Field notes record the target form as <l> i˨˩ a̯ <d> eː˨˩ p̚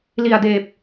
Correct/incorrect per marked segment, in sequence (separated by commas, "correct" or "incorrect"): correct, correct